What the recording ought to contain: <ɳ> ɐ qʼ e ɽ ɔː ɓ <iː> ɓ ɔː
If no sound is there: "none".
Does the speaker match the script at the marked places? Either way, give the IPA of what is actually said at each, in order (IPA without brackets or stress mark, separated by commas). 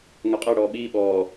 ŋ, iː